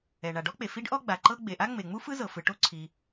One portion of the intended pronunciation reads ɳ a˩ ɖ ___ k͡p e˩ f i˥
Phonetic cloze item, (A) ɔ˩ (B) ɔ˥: B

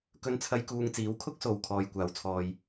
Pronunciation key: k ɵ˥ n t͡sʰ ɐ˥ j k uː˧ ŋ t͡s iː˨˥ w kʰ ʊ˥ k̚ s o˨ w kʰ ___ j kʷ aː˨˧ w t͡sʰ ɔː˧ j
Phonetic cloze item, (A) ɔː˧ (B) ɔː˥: A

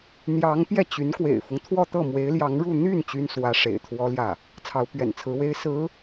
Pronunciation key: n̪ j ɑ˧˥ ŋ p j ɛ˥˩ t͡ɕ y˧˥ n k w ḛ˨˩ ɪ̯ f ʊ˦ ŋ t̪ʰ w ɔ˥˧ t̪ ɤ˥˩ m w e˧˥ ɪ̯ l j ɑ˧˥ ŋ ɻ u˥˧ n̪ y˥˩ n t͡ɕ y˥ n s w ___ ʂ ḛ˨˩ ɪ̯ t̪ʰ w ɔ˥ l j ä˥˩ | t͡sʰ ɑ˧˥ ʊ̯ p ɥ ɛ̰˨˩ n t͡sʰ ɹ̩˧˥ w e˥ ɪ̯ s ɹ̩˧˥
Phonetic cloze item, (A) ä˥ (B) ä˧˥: B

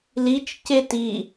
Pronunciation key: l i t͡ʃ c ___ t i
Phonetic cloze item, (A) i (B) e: B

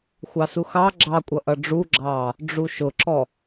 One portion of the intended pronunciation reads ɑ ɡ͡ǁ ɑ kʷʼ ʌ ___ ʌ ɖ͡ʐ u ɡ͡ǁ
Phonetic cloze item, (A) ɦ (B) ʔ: B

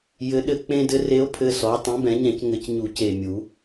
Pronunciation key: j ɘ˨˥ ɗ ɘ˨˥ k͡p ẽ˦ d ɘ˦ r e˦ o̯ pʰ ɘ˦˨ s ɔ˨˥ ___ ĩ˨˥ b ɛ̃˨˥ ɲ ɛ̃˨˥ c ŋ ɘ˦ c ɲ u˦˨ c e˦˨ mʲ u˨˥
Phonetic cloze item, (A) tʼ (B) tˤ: B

